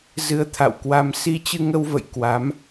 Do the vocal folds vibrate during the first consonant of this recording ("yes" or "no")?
yes